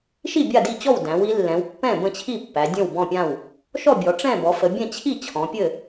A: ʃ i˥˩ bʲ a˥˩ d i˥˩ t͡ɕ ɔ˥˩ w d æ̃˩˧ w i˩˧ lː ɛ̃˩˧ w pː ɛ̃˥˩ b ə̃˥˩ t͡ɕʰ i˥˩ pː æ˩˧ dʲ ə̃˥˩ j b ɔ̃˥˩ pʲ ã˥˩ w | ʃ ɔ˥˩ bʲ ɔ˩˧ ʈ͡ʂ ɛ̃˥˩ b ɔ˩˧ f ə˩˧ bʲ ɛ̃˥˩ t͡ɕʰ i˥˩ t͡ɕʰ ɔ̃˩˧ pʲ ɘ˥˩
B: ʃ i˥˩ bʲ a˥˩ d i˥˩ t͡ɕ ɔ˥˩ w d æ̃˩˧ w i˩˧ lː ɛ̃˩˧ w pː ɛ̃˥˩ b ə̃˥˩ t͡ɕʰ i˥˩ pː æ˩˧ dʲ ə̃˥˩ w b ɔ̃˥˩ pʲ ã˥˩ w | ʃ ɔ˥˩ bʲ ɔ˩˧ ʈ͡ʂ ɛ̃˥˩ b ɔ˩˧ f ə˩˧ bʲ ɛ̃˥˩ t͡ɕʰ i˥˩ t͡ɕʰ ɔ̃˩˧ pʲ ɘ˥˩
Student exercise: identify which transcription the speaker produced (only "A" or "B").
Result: B